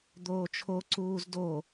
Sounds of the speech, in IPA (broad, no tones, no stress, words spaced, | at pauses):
d̪oːt͡ʃʰo ǀuːzdo